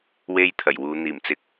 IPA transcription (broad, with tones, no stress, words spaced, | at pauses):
we˥jt̪ʰɐ˨˩jwuː˨˧ n̪iː˨˩mt͡sɪ˨˥k̚